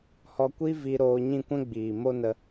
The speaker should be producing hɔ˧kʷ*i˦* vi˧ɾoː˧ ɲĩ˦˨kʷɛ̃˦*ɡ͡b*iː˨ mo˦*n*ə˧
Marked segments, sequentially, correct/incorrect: correct, correct, correct

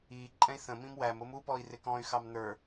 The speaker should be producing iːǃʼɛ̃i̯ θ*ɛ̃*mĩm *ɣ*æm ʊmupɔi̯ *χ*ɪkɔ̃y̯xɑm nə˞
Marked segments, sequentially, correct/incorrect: incorrect, incorrect, incorrect

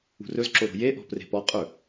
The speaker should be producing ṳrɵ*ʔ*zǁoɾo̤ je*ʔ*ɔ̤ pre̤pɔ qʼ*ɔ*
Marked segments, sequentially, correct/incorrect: incorrect, correct, incorrect

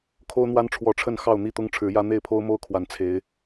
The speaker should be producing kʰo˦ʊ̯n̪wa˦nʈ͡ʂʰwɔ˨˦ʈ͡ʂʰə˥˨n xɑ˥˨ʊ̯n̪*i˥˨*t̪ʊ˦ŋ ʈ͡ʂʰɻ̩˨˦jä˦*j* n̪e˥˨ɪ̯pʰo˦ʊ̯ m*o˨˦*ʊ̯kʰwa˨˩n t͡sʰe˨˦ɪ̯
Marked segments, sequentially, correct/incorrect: incorrect, incorrect, incorrect

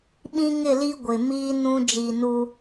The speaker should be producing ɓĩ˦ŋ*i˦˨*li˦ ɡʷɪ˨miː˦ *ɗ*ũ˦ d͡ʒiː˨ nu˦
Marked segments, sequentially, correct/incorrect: incorrect, incorrect

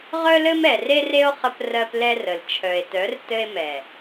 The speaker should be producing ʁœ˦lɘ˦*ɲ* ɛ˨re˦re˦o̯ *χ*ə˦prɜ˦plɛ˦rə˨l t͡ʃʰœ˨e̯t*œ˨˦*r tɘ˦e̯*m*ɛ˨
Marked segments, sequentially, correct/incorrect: incorrect, correct, correct, correct

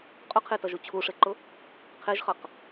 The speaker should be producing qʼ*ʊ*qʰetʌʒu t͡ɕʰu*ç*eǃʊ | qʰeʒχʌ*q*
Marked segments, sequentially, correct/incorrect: correct, incorrect, correct

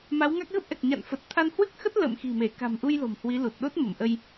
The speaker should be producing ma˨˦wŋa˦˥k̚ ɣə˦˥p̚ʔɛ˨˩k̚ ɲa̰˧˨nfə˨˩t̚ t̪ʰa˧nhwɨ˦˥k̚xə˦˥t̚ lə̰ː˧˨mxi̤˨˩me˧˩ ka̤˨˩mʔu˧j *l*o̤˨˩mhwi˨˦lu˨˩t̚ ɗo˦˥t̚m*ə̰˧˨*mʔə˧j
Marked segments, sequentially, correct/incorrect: correct, incorrect

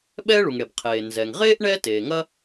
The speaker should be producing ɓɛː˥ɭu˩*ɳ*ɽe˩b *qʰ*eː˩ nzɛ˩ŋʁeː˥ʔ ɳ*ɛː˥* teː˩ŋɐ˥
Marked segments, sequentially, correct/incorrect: incorrect, correct, correct

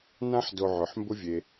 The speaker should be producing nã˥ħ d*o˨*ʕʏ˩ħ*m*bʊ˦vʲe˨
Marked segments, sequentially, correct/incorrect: correct, correct

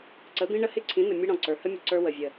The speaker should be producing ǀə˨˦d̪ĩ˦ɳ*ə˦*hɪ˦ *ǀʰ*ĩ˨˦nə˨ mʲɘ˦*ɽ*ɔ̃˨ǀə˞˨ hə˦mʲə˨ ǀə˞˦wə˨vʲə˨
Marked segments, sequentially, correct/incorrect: correct, correct, correct

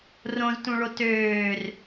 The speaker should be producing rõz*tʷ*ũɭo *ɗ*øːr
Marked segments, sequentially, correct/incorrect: incorrect, incorrect

